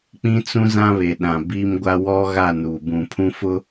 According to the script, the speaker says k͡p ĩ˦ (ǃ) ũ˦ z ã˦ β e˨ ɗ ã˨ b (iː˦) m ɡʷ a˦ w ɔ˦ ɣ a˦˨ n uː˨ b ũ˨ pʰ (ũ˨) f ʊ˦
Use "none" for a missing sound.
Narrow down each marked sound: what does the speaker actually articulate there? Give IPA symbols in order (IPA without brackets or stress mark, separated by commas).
t͡s, iː˦, ũ˦